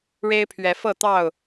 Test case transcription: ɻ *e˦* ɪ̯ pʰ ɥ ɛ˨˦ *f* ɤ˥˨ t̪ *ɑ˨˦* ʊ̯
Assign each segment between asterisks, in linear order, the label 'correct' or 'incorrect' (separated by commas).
correct, correct, incorrect